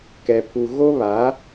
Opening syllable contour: low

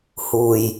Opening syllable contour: low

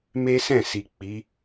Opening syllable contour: high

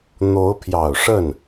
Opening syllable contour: rising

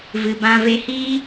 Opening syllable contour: low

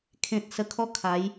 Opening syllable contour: low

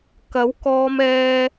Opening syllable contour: rising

